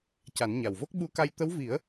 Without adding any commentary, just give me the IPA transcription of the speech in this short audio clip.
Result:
c a˨˩˦ n ɲ a˨˩ w v o˦˥ k̚ ɓ u˧ k a˧ j t̪ ə˧˥ w v i˨˩˦ ə̯

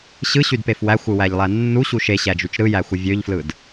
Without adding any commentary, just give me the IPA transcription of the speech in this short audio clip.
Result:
ɕ ɯ ɕ y d p e f w æ xʷ ɯ w æ ʎ lˠ æ nː u ɕ u ʃ e ɕ æ d͡ʒ y t͡ʃ ɾ ɯ j æ xʷ ɯ vʲ ø ʎ f l ɯ d

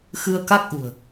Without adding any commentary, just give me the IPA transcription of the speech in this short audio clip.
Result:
x ɨ˧ ə̯ k a˦˥ k̚ ʔ ṳ˨˩ ə̯

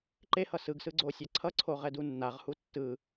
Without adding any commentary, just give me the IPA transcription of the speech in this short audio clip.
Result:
ǃ e h ʌ s ɯ ɡ s ɯ ɡ͡ǀ o sʲ a ǀʰ ʌ ǀʰ o ʁ ɛ d u nː a ʁ h u tː ɯ

